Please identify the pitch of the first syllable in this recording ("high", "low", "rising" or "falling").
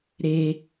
high